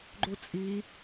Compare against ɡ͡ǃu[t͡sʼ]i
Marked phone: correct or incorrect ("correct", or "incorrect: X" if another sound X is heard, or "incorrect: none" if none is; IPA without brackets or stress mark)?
correct